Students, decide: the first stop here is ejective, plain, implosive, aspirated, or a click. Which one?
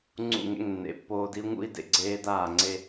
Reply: click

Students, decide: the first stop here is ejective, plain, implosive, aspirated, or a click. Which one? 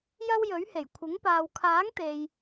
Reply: aspirated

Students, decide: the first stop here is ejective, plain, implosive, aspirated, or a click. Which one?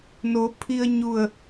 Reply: aspirated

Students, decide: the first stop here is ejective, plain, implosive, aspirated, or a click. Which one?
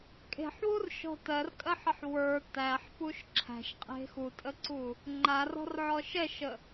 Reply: ejective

